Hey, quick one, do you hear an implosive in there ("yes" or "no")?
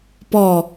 no